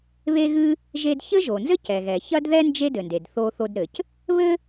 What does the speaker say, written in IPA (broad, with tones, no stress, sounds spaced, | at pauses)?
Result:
β e˥ ɣ ɨ˥ | ʒ e˧ d ç ɘ˥ ʒ o˩ n z ɘ˥ c ɛ˩ ɣ ɛ˩ ç ɐ˥ d ð ɛ˥ n d͡ʒ e˥ d ɘ˩ n d e˩ d θ o˧ θ o˧ d ɾ ɘ˩ c | β ɘ˥